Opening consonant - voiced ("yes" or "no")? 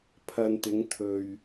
no